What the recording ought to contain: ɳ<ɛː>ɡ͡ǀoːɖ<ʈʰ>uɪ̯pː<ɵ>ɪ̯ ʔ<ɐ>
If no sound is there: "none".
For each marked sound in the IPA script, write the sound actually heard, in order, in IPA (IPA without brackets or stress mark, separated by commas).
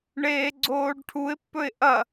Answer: eː, ʈʰ, ɵ, ɐ